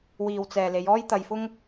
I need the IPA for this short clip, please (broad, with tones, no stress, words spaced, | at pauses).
wiː˨wt͡sɛː˨ le˨˧jɔː˥j t̪ɐ˧jfʊ˥ŋ